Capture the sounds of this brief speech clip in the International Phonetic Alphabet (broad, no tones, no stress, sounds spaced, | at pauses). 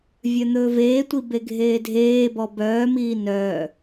vʲ œ n̪ ɵː v eː tʷ i b e ɡʱ eː dʱ eː b ɔ b œː m iː n œː